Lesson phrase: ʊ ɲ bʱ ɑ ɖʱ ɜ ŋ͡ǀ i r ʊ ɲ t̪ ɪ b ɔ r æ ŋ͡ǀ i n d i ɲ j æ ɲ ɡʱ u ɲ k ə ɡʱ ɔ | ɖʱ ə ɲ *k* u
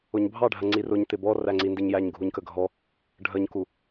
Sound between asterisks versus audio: correct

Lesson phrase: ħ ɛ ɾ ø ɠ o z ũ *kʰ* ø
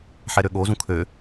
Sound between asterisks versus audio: correct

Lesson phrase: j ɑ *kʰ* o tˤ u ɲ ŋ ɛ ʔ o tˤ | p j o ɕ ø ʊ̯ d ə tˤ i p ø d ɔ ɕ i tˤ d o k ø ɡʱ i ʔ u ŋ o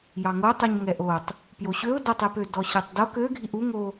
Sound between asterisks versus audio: incorrect: ŋ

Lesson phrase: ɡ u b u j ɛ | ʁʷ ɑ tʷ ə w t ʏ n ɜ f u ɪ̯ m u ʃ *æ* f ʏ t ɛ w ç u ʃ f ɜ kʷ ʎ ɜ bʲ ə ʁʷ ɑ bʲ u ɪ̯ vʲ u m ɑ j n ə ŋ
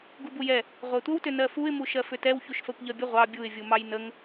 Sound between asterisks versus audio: incorrect: ɜ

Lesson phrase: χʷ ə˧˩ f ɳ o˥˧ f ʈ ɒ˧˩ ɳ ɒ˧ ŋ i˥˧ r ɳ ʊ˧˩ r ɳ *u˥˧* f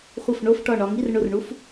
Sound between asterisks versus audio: correct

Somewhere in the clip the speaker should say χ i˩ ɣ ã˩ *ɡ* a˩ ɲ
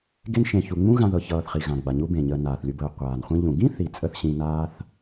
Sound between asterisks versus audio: incorrect: ɡ͡b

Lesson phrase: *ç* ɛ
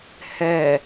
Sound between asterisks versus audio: incorrect: h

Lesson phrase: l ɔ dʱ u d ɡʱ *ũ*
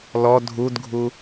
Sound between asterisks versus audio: incorrect: u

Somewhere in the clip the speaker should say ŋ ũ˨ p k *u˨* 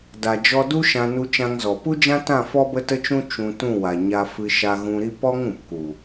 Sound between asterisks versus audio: correct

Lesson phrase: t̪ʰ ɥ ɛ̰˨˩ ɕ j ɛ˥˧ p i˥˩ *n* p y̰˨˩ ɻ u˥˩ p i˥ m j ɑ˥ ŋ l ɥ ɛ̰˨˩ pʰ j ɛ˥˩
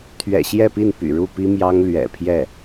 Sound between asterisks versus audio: correct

